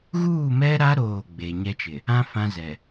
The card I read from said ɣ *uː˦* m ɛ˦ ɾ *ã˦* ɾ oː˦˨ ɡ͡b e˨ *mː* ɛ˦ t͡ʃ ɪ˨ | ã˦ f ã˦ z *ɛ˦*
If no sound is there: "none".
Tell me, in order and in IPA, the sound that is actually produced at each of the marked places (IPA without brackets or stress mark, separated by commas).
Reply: uː˦˨, a˦, ɲ, ɛ˨